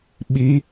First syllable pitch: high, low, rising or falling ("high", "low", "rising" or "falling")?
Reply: rising